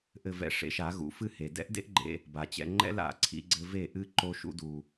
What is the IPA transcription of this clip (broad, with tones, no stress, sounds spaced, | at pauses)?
ʔ ɘ˧ v ɛ̰˧ ʂ ḛ˧ ʃ a˨˦ ɣ ṵ˨˦ f ɨ˧ h e˨ d ɛ̰˦ ʔ d ḛ˦ ʔ ɡ͡ǃ ḛ˧ | b a˨ t͡ɕ ɛ̰˧ ŋ͡ǃ ɛ̰˦ l a̰˨ ǀʰ ḭ˦ ɡ͡ǀ ɘ˦ v e˦˨ ʔ ɨ˦ ǃ o˦ ʃ ṵ˦ d u˧